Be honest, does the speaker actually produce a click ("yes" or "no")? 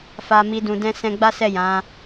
no